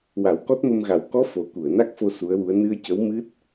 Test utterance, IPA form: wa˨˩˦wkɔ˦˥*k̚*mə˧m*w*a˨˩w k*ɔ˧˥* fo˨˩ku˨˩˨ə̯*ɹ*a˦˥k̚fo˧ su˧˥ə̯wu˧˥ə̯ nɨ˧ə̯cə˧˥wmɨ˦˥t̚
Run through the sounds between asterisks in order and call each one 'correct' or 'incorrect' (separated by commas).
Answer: incorrect, incorrect, correct, incorrect